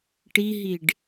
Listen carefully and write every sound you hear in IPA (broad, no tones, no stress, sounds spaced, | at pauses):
ʈ i ɦ i ɖ